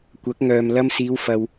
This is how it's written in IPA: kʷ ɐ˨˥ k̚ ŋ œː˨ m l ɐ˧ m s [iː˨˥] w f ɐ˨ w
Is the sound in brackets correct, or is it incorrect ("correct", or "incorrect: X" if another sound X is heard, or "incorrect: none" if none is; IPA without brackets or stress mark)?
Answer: incorrect: iː˨˧